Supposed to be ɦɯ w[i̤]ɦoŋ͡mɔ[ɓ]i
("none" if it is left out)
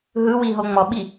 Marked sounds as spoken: i, ɓ

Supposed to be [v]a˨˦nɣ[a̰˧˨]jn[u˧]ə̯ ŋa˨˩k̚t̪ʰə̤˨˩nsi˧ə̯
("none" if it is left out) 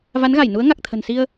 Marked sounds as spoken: v, a˧˩, u˨˦

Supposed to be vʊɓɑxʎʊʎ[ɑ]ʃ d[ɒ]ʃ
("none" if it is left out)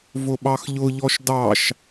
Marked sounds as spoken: ɔ, ɑ

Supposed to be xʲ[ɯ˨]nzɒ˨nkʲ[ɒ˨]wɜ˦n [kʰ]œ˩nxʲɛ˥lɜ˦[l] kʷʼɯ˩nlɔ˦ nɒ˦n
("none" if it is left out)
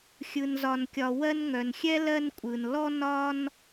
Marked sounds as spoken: ɯ˨, ɒ˨, ŋ, n

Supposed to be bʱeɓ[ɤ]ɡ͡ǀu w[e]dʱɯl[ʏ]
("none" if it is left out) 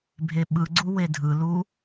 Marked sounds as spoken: ɯ, e, u

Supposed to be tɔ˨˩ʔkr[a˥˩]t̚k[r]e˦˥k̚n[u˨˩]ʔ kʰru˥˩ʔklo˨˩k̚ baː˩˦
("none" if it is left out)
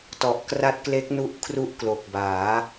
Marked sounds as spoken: a˦˥, l, u˦˥

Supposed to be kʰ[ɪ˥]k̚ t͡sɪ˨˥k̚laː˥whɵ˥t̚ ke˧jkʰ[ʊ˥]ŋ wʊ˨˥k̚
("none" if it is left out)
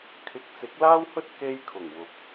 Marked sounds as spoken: ɪ˨, ʊ˨˩

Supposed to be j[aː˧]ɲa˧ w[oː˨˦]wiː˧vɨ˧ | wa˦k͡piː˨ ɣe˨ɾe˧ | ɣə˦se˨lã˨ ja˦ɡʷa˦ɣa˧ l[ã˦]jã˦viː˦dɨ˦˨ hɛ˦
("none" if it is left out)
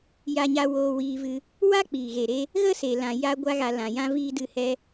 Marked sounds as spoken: a˧, oː˧, ã˨

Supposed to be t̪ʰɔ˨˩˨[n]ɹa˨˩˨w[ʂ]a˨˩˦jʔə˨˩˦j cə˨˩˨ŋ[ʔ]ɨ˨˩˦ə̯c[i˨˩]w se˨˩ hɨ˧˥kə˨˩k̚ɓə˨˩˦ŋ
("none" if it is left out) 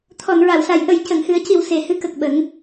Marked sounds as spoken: n, s, h, i˨˩

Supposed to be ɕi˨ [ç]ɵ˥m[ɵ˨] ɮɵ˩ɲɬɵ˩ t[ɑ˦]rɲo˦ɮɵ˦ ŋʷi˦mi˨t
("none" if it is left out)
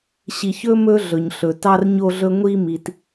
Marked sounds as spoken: ç, ɵ˦, ɑ˦

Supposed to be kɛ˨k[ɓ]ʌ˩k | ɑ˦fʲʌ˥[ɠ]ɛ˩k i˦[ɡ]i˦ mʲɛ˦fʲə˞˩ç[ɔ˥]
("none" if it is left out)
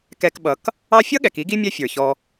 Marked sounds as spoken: ɓ, ɠ, ɡ, ɔ˨

